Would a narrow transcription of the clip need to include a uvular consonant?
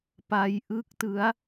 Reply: no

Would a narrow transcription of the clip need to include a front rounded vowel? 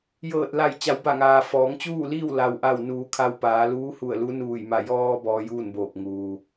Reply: no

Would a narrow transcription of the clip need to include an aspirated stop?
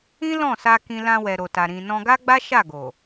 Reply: no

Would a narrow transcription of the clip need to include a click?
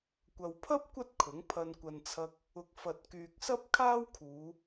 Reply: no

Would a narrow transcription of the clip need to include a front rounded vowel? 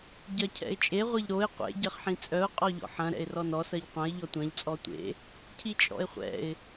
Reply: yes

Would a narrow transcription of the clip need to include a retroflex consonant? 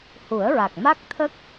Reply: no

